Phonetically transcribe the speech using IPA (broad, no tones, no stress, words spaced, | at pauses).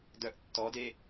dœʔ tːɔde